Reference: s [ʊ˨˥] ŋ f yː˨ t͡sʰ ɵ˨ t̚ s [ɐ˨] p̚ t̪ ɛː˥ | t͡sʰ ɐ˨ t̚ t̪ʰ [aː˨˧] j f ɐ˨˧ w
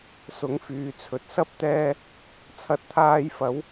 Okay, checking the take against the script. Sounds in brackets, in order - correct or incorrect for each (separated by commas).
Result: correct, incorrect, incorrect